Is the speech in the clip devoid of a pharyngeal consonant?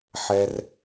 no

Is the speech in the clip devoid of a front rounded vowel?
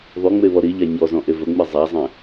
no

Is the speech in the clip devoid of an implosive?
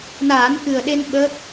no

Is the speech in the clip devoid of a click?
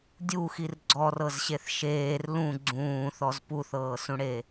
no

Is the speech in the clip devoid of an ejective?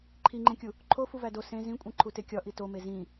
no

